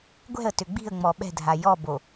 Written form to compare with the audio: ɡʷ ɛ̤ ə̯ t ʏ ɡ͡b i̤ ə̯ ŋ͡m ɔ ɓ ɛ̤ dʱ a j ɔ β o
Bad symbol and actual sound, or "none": β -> b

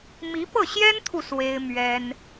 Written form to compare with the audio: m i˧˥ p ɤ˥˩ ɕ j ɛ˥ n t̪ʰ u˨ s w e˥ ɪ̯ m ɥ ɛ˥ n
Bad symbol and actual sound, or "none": none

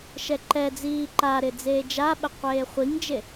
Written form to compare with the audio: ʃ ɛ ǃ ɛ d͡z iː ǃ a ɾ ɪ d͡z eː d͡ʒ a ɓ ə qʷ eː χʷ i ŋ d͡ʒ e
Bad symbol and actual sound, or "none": none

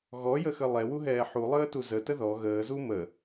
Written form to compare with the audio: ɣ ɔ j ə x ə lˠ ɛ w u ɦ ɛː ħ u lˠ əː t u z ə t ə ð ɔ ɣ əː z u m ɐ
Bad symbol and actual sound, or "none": ɐ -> ə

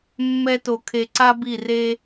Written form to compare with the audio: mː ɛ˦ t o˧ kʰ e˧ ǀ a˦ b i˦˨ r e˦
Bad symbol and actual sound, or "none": none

